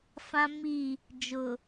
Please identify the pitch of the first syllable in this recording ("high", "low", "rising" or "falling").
high